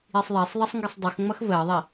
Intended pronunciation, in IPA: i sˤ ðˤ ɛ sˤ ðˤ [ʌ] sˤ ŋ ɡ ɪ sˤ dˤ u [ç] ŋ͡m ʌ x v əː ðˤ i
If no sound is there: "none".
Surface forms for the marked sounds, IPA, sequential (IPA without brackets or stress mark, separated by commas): ə, x